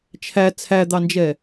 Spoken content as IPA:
t͡ʃʰ æ t͡sʰ æ d̪ ɑ n d͡ʒ ɛ

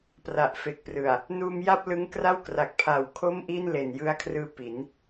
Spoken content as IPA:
p r a˨˩ ʔ f e˨˩ k̚ p r ɯ˨˩ a̯ | n uː˧ m j a˥˩ p̚ l ɯ˦˥ ŋ k r a˥˩ w k r a˨˩ k̚ pʰ a˨˩ w kʰ o˥˩ m ʔ iː˥˩ n l e˨˩ n j ɯ˧ a̯ kʰ r ɯː˦˥ p i˩˦ n

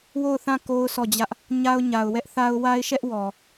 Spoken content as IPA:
w o˦˨ ʊ̯ θ ã˦˨ k o˦ ʊ̯ sʰ ɔ˦˨ d͡ʑ ä˦ ʔ | ɲ a˦ ʊ̯ ɲ a˨ ʊ̯ w ɛ˦ ʔ θ a˦ ʊ̯ w a˦ ɪ̯ ʃ ɛ˦ ʔ w ɔ˨

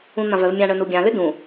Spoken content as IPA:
ũ n̪ ã v œ v mʲ ã ɳ œ n u ɡʲ ã l ʏ d ũ

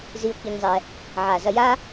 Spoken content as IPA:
z i˧ ʊ̯ k i˧ ɲ zˤ ɛ˧ | ʕ a˨ z ɐ˧ j a˦

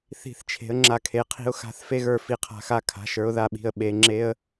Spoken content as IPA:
θ i̤˦˨ θ t͡ʃʰ e̤˨˥ ə̯ ŋ͡ǁ a˦˨ kʰ e˨˥ qʰ i̤˦˥ ʊ̯ x a̤˦˥ θ f e˦˥ ɣ ə˞˦˨ f i˦˨ qʰ a̤˦˥ x a˦˥ kʰ a̤˨˥ ʃ ə˞˨˥ ʊ̯ ð a˦˨ ɓ i̤˦˨ ə̯ ɓ e˨˥ ŋ͡ǁ e˦˥ ə̯

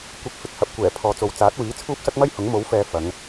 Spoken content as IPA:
kʷ ɐ˧ k̚ f ɪ˧ k̚ h ɐ˨˥ p̚ kʷ ɛː˨˩ pʰ ɔː˨˧ t͡s o˨ w t͡s aː˨˥ t̚ w iː˨˥ t͡sʰ uː˥ p̚ s ɐ˥ k̚ m ɐ˥ j h ʊ˨˥ ŋ m o˨˥ w f ɛː˨ f ɐ˨˧ ŋ

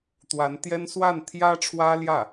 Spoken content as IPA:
t̪ w a˧˥ n t̪ j ɛ˥ n s w a˥˩ n t̪ʰ j ä˥ ʈ͡ʂʰ w ä˥ l j ä˥˩

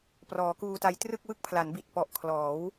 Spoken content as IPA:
p r ɔː˩˦ k uː˧ t a˦˥ j t r ɯ˥˩ k̚ w ɯ˥˩ k̚ pʰ l a˩˦ n b i˨˩ t̚ p ɔ˨˩ ʔ kʰ l ɔː˩˦ w

